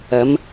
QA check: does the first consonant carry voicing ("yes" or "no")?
yes